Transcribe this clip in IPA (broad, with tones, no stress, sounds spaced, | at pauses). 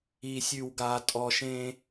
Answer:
i˨ sʲ ʉ˨ w ɡ a˨ tʼ ɔ˨ ʃ ẽ˦